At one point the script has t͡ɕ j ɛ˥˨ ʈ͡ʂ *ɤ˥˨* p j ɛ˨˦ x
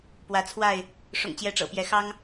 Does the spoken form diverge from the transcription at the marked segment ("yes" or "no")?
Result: yes